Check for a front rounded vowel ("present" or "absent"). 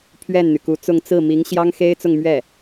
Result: present